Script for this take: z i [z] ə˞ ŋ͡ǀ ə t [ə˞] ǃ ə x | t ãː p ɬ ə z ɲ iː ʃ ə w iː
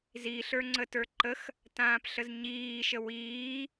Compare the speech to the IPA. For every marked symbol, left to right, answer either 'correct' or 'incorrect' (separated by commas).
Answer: incorrect, correct